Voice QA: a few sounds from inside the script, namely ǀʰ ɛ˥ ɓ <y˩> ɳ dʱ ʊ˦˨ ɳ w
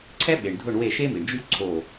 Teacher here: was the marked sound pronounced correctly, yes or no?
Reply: no